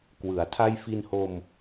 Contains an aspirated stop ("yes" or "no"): yes